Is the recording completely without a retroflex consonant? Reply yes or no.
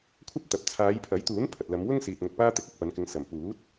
yes